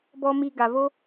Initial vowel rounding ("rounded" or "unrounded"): rounded